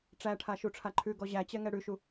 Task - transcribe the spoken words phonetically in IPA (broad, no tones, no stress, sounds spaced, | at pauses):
ʈ͡ʂ æ ʈʰ a ʃ u ʈ͡ʂʰ a ǃʰ ʉ ɡ ɔ ʑ æ t͡ɕ ɛ ŋ ɛ ɽ ʉ ʃ u